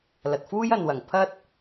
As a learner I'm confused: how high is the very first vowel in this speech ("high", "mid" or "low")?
low